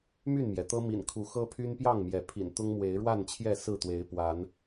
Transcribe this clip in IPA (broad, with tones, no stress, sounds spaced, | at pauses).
m y˥˨ n m j ɛ˩ t̪ ɤ˦ m ḭ˨˩ n kʰ u˨˦ x ɤ˦ pʰ y˦ n p j ɑ˥˨ ŋ m j ɛ˨˦ pʰ ḭ˨˩ n t̪ ʊ˦ ŋ m w e˨˦ ɪ̯ ɻ w a˥˨ n t͡ɕʰ j ɛ˥˨ s ɹ̩˥˨ t̪ w e˨˦ ɪ̯ p w a˨˦ n